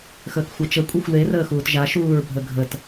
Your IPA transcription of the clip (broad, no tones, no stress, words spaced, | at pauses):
xəːkxʷat͡ʃə kʷʼexʷle rəːxuːtʒa ʃuːɹbʱəɡʱət